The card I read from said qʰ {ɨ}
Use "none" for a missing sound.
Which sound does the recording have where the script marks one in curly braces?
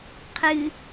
ɨ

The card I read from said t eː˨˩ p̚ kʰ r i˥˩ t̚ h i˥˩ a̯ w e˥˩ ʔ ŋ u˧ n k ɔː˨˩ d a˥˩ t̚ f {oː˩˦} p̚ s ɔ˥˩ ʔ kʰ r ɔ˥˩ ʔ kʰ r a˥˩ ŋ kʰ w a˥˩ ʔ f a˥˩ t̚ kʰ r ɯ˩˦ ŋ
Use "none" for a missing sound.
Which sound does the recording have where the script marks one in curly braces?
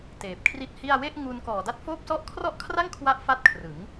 oː˥˩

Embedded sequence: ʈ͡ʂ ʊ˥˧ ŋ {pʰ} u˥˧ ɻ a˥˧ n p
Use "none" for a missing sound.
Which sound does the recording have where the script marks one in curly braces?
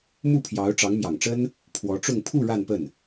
pʰ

